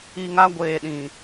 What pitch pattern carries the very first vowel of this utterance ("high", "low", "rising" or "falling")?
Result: low